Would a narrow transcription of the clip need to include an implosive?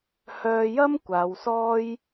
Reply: no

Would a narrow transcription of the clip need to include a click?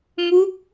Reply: no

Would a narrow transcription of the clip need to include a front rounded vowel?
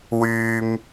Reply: yes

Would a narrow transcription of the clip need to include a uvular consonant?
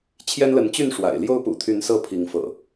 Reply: no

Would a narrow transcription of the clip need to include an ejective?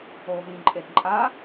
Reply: yes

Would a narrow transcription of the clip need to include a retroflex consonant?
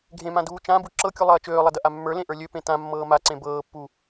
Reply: no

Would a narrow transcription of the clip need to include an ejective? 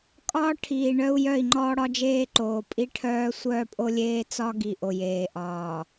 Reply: yes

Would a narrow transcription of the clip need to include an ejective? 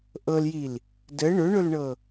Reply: no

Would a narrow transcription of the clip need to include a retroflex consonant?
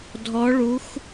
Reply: yes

